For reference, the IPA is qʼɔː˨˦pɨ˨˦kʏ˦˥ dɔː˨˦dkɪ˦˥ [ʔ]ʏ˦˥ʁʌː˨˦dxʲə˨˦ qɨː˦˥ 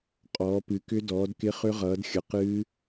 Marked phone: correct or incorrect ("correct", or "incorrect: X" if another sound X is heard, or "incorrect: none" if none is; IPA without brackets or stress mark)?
incorrect: χ